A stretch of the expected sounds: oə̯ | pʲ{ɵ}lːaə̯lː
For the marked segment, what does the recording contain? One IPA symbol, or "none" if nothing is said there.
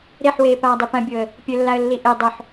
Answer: ɵ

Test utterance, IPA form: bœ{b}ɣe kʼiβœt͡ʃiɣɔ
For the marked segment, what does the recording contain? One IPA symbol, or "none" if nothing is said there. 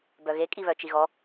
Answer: none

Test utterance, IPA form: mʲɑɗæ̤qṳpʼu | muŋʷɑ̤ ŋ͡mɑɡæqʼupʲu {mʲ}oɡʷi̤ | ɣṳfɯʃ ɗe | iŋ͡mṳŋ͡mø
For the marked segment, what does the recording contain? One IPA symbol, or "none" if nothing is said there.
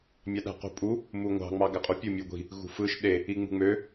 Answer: mʲ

